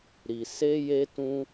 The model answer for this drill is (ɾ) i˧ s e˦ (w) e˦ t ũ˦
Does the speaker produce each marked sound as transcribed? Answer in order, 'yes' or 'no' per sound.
yes, no

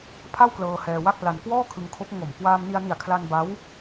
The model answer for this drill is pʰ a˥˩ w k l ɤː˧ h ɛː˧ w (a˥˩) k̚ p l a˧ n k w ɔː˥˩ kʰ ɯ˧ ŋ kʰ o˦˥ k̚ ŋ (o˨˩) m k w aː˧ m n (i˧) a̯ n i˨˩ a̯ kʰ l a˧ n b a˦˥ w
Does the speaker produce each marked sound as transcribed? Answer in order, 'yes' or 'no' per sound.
yes, yes, yes

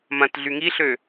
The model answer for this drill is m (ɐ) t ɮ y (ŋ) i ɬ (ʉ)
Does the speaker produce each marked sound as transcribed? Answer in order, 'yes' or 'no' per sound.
no, yes, no

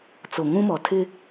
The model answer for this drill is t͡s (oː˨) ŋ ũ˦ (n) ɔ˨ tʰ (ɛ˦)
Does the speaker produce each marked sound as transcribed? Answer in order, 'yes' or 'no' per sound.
no, no, no

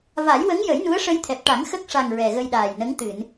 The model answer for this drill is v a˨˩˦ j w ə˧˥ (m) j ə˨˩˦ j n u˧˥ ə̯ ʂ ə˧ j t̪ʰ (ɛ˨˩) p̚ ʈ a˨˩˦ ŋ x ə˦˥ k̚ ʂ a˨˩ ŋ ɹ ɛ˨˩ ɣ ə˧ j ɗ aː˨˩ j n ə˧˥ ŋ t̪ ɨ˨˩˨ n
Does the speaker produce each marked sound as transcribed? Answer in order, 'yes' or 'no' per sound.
no, yes

